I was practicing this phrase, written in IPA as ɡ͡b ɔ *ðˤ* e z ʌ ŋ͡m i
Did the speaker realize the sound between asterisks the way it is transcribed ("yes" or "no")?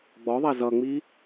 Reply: yes